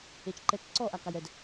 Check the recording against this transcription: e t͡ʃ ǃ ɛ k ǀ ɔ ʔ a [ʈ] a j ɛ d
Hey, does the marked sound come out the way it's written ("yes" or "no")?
no